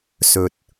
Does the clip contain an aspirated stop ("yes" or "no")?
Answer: no